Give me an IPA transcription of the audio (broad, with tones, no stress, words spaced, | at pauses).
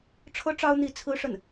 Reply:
ʈ͡ʂʰɤ˥ʈ͡ʂɑ˥ʊ̯n̪i˧˥ t͡sʰɹ̩˥ʂə˥˩n